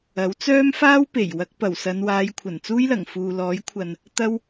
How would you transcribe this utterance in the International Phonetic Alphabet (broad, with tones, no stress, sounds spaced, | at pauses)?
ɐ˨˥ w t͡s œː˥ m f aː˥ w p e˨˩ j w ɐ˧ k̚ p ɐ˨˩ w s ɐ˨˧ n w aː˨˧ j kʷʰ ɐ˨˩ n t͡s uː˥ j l ɐ˨˩ ŋ f uː˨ l ɔː˨˥ j kʷʰ ɐ˨ n | t̪ ɐ˥ w